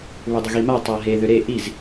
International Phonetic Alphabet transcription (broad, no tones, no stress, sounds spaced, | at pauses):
β ʏ dˤ ə ɣ i m a tˤ a ɦ e ð ʏ ɾ e ʔ i z